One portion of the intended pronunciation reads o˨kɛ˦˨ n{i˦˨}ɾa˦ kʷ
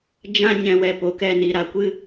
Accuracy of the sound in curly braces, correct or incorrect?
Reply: incorrect